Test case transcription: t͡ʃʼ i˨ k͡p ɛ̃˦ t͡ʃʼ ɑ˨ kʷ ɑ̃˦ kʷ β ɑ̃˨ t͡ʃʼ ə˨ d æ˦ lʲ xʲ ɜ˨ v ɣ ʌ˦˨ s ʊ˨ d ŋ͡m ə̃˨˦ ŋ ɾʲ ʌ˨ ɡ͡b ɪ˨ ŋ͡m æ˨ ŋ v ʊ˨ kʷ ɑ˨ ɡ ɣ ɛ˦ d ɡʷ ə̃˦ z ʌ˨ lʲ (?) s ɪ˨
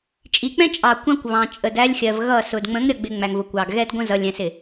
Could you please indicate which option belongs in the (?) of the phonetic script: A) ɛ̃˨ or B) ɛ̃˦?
A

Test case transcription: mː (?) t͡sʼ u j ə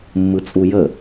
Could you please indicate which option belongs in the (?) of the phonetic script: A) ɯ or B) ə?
A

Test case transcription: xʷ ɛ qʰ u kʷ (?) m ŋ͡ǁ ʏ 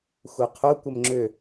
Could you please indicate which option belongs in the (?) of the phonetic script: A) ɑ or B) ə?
B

